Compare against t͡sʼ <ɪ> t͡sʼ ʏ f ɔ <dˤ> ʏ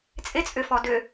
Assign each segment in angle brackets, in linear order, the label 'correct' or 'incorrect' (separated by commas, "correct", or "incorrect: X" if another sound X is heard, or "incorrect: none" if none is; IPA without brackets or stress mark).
correct, incorrect: d